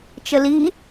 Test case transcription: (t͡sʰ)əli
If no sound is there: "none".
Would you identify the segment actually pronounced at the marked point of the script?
t͡ʃ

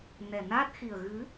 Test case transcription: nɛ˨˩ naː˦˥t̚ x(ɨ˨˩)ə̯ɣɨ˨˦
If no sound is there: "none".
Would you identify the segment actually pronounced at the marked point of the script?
i˨˩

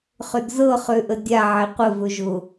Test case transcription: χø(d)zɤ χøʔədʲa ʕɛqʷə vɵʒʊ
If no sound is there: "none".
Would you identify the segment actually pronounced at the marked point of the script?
d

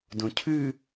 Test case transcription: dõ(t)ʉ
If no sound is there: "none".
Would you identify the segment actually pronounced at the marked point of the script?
cʰ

